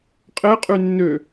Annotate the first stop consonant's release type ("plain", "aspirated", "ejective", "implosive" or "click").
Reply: ejective